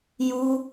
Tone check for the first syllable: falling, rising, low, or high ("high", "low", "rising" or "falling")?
high